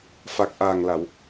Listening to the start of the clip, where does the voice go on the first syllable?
low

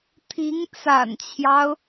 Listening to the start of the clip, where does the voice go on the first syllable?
rising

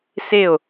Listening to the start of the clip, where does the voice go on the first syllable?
falling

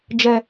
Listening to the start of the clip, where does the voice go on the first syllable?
low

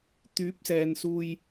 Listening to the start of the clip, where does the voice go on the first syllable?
rising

